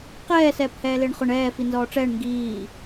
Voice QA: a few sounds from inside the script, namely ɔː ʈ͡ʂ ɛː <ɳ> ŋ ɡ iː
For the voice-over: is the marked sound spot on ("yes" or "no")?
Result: yes